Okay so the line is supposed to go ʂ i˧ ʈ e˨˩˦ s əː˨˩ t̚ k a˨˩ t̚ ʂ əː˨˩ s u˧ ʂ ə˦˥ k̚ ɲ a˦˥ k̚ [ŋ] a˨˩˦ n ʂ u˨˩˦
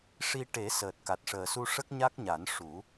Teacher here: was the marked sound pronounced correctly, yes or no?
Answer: no